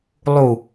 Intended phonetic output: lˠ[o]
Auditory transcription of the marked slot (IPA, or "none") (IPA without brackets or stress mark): u